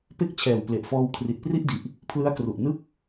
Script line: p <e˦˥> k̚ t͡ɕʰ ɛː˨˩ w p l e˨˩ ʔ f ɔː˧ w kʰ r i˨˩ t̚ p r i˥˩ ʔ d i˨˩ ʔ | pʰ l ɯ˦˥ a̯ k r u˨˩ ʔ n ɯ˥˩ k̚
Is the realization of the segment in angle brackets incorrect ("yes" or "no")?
yes